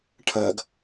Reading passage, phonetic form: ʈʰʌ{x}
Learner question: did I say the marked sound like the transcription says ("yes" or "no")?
no